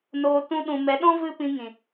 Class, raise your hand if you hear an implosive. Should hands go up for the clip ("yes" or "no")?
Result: yes